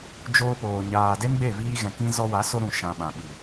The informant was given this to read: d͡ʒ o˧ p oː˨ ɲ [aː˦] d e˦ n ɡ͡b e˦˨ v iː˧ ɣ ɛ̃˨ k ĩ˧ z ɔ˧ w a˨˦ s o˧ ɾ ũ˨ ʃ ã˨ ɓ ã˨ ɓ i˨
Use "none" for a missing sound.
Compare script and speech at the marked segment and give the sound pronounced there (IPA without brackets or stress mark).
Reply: aː˨